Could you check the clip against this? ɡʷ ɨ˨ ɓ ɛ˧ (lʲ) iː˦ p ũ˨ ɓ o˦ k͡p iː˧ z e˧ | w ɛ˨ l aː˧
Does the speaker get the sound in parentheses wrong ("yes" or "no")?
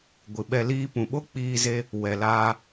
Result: yes